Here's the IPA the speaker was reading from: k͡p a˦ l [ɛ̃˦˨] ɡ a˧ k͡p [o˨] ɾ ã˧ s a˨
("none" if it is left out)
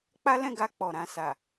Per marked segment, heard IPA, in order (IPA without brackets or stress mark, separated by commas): ɛ̃˦˨, ɔ˨